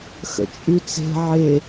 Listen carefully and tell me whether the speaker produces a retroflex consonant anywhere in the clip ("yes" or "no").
no